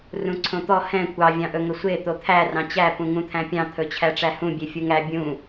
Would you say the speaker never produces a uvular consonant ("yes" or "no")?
yes